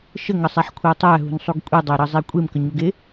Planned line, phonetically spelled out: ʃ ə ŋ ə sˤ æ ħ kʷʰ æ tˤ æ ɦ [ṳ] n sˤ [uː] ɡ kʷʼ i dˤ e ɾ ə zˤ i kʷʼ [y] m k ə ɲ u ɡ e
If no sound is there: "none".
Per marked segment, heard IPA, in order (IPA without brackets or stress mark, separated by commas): ṳ, u, e